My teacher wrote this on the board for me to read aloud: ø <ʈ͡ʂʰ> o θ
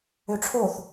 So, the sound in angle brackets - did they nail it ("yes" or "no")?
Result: yes